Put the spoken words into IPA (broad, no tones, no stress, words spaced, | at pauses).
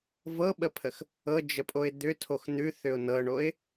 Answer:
vɤɓəpʰəx | ɤd͡ʒəpʼoɪ̯ d̪ʏtʰox n̪ʉθʏʊ̯ nɤɳoɪ̯